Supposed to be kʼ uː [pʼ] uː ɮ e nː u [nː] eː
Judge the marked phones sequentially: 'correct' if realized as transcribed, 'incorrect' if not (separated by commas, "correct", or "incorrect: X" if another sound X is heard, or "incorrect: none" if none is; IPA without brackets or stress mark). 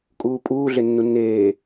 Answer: correct, correct